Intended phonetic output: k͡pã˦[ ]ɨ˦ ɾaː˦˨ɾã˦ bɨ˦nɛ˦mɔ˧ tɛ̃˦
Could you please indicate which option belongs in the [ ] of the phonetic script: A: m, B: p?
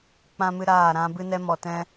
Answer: A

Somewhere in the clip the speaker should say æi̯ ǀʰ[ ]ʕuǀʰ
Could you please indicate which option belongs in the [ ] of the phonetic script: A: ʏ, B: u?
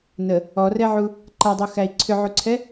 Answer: A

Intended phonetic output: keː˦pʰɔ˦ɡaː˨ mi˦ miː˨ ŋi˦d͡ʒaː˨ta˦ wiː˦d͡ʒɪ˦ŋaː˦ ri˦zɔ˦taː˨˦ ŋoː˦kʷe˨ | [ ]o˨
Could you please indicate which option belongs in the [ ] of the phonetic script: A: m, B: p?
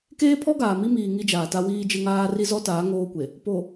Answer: B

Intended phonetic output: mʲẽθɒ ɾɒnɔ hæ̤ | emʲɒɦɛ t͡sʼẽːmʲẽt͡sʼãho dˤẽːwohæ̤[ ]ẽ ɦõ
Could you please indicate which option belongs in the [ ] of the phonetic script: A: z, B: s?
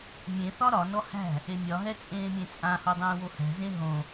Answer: A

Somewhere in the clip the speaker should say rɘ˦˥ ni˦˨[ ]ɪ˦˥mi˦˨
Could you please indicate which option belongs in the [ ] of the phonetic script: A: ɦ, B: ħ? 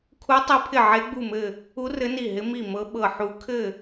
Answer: A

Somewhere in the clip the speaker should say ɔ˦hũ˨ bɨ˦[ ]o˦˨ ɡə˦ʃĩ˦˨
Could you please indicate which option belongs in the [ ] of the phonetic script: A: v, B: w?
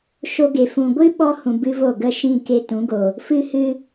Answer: A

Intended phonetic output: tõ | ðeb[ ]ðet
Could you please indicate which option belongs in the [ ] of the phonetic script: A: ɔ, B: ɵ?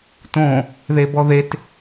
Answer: A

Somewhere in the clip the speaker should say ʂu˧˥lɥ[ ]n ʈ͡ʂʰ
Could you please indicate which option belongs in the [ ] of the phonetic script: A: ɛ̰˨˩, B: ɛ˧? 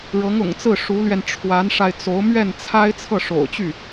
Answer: B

